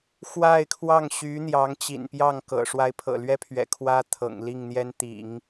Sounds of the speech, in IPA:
x w a˥˧ ɪ̯ kʰ w ɑ˥˩ ŋ ɕ y˧˥ n̪ j ɑ˧˥ ŋ t͡ɕ ḭ˨˩ n p j ɑ˥˩ ŋ k ɤ̰˨˩ ʂ w a˧˥ ɪ̯ pʰ ɤ̰˨˩ l ɥ ɛ˥ pʰ ɥ ɛ̰˨˩ kʰ w ä˥ t̪ʰ ɤ̰˨˩ ŋ l i˥˩ ŋ n̪ j ɛ˥ n t̪ ḭ˨˩˦ ŋ

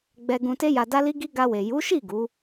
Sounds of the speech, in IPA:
ɡ͡b ɛ˧ ɡ ũ˧ t e˦ j a˧ d a˦ l i˦ ɡ i˦ ɡ a˧ w e˨ j u˨˦ ʃ i˦˨ ɡ u˨˦

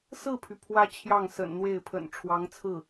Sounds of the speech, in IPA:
s ɹ̩˥˩ pʰ y˩ pʰ w ä˥ t͡ɕʰ j ɑ˥˩ ŋ s ə̰˨˩ n n̪ w e˥˩ ɪ̯ pʰ ə̰˨˩ n ʈ͡ʂʰ w ɑ˧˥ ŋ t͡sʰ ɹ̩˥˩

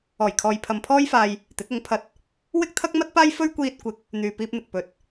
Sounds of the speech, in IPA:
ɔː˨˩ j kʰ ɔː˨ j pʰ ɐ˨ m pʰ ɔː˥ j f aː˧ j | t̪ ɪ˨˥ k̚ ʊ˨˥ ŋ pʰ ɐ˧ t̚ | w ɪ˥ k̚ t̪ʰ ɐ˥ k̚ m ɐ˥ t̚ p aː˥ j f ɵ˥ ɥ kʷ iː˧ t̚ kʷ ɪ˨˥ k̚ | n̪ yː˨ p iː˧ p̚ n̪ ɪ˨ k̚ p ɵ˨ t̚

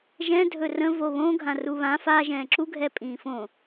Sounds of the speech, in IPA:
ʒ ɛ̃ dʱ ɵ r ə̃ v o β õ ɡʱ ã r u β ã f a ʒ ɛ̃ː ǁ u ɡʱ ɛ pʼ ĩː f õ

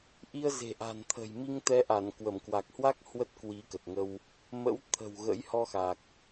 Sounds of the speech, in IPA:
ʔ i˧ ə̯ z e̤˨˩ ʔ a̤˨˩ n t̪ʰ ə̤˨˩ j m i˧ ŋ t̪ ɛ˨˦ ʔ a˧˩ n k w ə˧˩ m k w a˨˩ k̚ h w a˦˥ k̚ h w ə˦˥ t̚ k w i˨˦ k ə˨˩ t̚ ŋ ə˧ w | m ə̰˧˥ w t̪ʰ ə̤˨˩ w ɣ ə̰˧˥ j h ɔ˧ x a˨˩ k̚

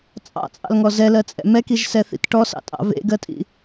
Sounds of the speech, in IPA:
t͡sʼ ɑ̰ t͡sʼ ɑ̰ l ŋ ɔ z ɛ l ɜ t͡sʼ ɛ̰ m ɛ k i ʒ s ɛ θ ḭ t ʈ ɔ s ɑ̰ tʼ ɑ̰ v ḛ ɡ ɜ tʼ ḭ

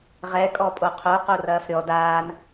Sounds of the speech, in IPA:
ʁ ɛ kʼ ɔ pʼ o qʰ o q o r ɐː f ɾʲ ɔ d aː n

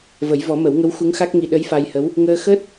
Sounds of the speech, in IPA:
v ə˨˩˦ j v ɔ˨˩˦ m ə˨˩˦ w ŋ ə˧˥ w x u˧˥ ŋ x a˦˥ k̚ ŋ i˧ ɗ ə˧˥ j f a˧ j h ə˧˥ w | ŋ əː˧ x əː˦˥ t̚

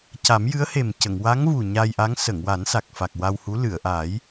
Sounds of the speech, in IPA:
c a˨˩˦ m j ɨ˧˥ ə̯ h e˨˩ m c ə˨˩˨ ŋ w a˧˥ ŋ v u˨˩ ɲ a˧ j ʔ a˧˥ ŋ s ə˨˩˨ ŋ w a˨˩˦ n s a˨˩ k̚ f a˨˩ k̚ w a˧ w h u˧˥ l ɨ˨˩˨ ə̯ ʔ a˨˩˦ j

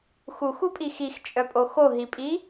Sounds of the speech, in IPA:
x u x u pʼ i x i x t͡ʃʼ œ pʼ o x o ɦ i pʼ i

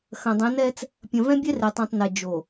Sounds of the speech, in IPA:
x ɐ̃˨ dˤ ẽ˨˦ n ɛ˦ t͡s | pʲ ɐ̃˨ v ɛ̃˦ bʲ ɛ˦ r e˨ tˤ ĩ˨ tˤ n ɛ˨ d͡ʒ o˨

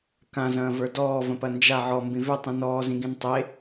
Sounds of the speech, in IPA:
k ã z ɐ̃ː v ə˞ d ɔː v ɐ̃ p ɐ n d͡ʒ a ʕ ɔ m b ĩ v ø tˤ ĩ n ɔː z ĩ ɡ ĩ n tˤ e

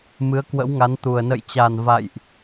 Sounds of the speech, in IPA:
m ɨ˨˦ ə̯ k w ə̰˧˥ w ŋ a˨˦ n t̪ u˨˩ ə̯ n ə̰˧˨ j t͡ɕ a˨˩ n v a̰˧˨ j ʔ

